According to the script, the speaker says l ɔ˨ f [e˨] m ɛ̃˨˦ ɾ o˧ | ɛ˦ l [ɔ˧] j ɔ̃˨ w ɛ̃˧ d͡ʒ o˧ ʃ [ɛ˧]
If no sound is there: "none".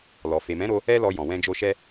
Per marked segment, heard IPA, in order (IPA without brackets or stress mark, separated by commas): e˨, ɔ˧, ɛ˦